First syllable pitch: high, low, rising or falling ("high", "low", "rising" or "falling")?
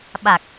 low